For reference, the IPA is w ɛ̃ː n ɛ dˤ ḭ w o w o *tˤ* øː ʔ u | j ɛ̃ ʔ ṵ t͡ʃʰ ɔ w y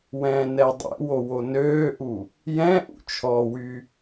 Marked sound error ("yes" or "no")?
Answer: yes